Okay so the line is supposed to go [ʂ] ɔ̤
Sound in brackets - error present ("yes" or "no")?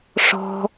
no